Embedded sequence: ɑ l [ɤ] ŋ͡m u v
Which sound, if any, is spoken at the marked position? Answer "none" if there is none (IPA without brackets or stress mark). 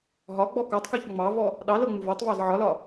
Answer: ɤ